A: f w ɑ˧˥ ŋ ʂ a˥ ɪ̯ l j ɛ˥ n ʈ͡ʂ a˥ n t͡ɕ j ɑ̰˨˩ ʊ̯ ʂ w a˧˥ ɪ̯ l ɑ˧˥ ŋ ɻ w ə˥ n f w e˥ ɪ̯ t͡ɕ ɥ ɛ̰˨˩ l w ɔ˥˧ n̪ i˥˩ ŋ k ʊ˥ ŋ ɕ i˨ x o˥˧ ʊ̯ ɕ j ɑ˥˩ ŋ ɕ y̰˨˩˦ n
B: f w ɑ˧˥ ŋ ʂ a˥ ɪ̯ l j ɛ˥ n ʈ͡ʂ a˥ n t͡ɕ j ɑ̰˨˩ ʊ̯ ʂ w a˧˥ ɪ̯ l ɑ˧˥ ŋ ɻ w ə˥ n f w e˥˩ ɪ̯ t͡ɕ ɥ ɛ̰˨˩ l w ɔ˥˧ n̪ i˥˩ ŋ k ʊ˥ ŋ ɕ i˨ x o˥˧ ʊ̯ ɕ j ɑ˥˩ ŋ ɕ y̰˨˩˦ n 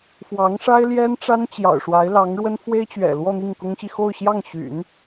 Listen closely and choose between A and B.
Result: A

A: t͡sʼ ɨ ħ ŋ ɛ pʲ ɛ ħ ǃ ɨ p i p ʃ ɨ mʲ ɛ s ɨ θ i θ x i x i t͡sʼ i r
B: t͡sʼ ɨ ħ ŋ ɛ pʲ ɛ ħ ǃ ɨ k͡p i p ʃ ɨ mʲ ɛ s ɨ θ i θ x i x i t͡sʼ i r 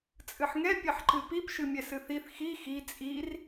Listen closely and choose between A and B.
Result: A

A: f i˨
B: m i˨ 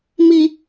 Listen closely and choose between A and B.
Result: B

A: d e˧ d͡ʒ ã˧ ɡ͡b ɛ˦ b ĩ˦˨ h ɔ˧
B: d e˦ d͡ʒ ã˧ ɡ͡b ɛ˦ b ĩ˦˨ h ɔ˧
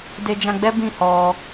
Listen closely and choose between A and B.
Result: A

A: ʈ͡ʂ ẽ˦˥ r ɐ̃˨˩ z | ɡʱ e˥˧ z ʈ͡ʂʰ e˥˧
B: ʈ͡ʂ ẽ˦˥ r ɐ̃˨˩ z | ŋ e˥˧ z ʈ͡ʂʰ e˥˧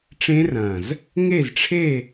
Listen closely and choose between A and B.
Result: B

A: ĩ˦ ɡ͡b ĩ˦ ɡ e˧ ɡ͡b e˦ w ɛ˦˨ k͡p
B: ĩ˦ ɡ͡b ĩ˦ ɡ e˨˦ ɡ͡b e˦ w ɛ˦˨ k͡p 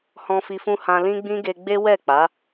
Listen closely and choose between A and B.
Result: A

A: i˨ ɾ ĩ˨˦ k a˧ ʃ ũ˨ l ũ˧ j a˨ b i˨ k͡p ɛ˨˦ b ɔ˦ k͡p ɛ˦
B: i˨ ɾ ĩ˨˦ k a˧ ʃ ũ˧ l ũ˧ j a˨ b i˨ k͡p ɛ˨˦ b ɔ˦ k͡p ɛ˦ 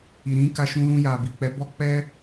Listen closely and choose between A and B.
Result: B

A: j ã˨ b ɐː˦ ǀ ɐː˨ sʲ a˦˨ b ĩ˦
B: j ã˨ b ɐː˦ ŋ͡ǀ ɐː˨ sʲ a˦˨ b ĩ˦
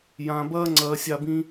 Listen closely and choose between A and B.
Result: B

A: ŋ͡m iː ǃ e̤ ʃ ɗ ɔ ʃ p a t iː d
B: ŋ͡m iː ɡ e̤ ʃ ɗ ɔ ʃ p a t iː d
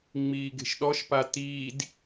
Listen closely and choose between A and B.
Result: B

